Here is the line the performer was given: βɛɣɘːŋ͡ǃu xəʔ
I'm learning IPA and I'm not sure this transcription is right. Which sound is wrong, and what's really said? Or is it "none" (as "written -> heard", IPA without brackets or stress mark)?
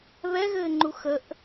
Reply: none